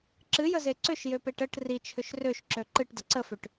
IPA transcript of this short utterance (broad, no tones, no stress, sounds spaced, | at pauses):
ǁ ɨ j ə z e ǀ ʏ ʃ j ø p e ʈ ə ʈ r i t͡ʃʰ ʏ ʃ r ø ʃ ǁ ø ǃ ɨ ʈ d ə ǀ ə f ø ʈ